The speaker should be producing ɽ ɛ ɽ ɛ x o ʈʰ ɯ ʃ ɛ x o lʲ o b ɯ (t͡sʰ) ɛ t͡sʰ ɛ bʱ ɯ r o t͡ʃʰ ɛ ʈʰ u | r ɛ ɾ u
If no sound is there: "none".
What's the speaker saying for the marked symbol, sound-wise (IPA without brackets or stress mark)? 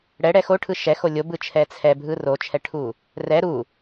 t͡ʃʰ